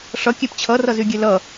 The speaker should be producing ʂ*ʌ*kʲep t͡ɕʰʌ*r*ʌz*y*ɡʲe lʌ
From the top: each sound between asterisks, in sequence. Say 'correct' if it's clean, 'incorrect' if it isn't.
correct, correct, correct

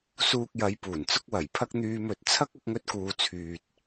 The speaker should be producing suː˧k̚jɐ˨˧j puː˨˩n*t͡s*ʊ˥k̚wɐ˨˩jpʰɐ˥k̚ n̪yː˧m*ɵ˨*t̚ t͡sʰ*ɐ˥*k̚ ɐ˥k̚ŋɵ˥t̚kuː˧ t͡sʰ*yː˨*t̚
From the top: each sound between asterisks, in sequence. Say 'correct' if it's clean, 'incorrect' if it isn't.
correct, correct, correct, correct

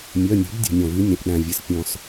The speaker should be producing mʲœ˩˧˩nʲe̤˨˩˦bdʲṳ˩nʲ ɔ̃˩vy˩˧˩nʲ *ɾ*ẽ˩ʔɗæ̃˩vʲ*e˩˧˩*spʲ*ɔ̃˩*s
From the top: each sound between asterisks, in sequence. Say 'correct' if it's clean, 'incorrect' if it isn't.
correct, incorrect, correct

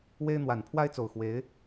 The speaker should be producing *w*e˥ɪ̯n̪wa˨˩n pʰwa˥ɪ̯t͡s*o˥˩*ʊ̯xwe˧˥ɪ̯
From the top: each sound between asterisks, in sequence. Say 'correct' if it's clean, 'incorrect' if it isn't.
correct, incorrect

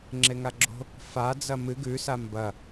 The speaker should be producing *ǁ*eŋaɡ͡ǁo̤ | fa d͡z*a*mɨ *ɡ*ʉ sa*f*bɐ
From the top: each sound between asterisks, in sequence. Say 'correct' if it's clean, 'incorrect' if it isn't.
incorrect, incorrect, correct, incorrect

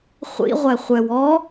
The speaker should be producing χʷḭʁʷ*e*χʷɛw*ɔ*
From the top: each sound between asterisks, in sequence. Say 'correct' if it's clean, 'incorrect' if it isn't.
incorrect, correct

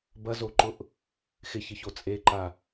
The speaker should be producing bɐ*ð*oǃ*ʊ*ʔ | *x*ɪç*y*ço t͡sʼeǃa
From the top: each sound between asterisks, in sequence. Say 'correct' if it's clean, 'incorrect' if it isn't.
incorrect, correct, correct, incorrect

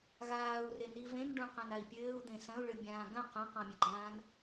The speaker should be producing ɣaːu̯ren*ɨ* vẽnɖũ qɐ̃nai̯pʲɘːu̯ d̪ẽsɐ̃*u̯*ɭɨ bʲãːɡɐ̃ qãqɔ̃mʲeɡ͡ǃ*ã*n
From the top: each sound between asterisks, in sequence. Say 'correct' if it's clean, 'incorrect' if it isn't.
incorrect, correct, incorrect

